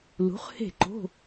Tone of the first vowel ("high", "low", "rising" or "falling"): rising